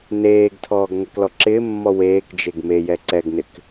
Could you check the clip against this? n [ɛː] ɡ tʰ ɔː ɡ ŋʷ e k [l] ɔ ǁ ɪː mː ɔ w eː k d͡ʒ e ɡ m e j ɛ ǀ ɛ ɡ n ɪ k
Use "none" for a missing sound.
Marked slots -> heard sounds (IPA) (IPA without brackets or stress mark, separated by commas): eː, l